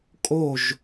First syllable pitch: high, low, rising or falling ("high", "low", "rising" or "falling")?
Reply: falling